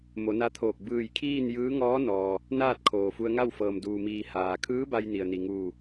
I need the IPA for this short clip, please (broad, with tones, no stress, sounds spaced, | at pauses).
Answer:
m o˩˧ n a˧˥ t̪ʰ oː˧˩ k̚ b ɯː˧˩ j kʰ iː˥˨ n j ɯː˧˥ ŋ ɔː˧˥ n ɔː˩ | n aː˥˨ t̚ kʰ oː˩ f u˧ ə̯ ŋ a˥˨ w f ɤː˩ m d uː˩ m iː˩ h aː˩ kʰ ɯː˧˥ b a˧ j n i˩ ə̯ n i˩ ŋ uː˧˩